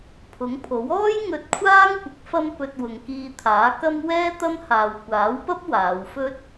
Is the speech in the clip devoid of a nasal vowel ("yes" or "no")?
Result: yes